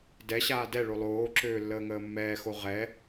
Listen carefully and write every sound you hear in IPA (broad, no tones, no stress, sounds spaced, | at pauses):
d ɛ ɕ aː d ɛ ɭ o lˠ oː ǁ øː lː əː ŋ əː mː ɛː x o ʁ ɛ